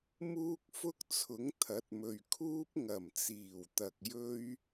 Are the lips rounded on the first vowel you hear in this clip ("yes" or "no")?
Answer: yes